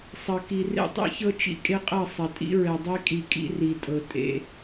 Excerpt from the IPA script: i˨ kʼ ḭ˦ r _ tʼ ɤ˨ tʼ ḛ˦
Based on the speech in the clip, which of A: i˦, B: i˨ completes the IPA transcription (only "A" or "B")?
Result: B